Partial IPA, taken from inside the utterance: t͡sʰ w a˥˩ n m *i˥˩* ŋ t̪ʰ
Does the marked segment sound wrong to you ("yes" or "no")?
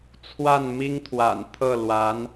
yes